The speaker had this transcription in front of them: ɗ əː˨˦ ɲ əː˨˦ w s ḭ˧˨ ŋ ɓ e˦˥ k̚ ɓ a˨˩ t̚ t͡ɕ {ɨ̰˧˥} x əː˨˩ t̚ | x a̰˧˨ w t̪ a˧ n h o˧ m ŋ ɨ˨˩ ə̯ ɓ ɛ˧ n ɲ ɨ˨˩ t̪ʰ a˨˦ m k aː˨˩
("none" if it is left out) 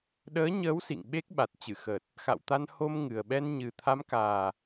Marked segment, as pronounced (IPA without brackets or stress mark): ɨ˧˩